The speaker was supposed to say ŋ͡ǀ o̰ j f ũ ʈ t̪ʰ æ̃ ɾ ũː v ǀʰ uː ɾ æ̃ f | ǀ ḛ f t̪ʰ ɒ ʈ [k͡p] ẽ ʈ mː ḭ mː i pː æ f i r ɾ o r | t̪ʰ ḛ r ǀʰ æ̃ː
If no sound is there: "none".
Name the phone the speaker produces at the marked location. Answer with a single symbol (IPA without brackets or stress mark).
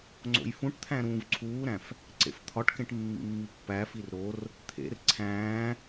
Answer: k